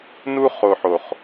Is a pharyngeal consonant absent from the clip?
no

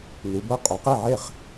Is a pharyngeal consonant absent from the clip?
no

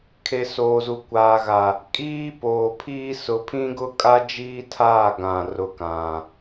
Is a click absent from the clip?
yes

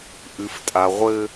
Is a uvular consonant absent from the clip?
no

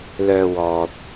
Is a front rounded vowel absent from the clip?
no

